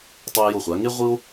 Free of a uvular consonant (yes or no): no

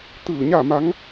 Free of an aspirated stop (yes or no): yes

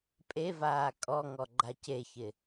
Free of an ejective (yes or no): no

